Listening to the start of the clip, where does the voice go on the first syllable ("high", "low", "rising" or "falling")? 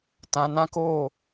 low